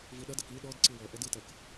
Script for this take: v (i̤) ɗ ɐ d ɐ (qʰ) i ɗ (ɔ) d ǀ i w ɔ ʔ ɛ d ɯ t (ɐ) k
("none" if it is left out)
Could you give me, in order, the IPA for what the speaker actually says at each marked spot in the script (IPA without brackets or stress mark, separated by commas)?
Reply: i, k, ɔ, ɐ